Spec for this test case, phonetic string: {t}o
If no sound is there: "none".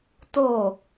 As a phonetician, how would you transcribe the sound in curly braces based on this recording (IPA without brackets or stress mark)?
t